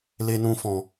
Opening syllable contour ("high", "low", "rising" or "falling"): high